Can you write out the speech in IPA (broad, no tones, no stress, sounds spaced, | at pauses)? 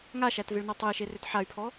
ŋ a ʃ æ t v e ɭ n a tˤ e i̯ ʃ e r ø t ħ a y̯ pʰ ɔ